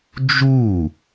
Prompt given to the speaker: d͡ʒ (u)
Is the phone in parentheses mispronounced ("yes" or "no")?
no